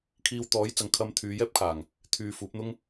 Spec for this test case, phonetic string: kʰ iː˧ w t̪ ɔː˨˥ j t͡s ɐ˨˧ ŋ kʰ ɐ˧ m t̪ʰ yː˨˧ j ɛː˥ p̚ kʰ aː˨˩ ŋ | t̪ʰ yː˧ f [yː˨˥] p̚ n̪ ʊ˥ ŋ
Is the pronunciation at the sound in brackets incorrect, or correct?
incorrect